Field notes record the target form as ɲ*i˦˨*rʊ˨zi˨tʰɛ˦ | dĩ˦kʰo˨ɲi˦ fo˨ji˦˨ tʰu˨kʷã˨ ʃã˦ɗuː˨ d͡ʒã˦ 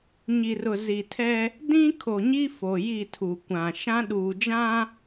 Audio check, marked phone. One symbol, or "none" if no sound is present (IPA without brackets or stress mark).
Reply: i˨